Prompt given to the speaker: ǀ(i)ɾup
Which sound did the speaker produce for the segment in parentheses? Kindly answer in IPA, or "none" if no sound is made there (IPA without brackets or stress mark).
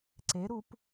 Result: e